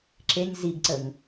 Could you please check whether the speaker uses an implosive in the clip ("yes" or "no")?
no